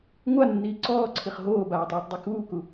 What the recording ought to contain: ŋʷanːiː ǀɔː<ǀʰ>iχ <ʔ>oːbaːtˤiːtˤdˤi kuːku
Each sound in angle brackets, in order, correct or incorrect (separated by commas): correct, incorrect